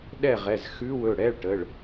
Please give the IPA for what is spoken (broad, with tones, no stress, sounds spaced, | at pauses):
ɗ ɛ˥˨ ʁ ɛ˩˧˩ z x ʉ˧˥˧ w ɵ˩˧˩ ɽ ɛ˧˥˧ ɭ ʈ ə˩˧˩ ɭ